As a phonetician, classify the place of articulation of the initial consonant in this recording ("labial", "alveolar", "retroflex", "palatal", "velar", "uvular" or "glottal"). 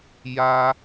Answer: palatal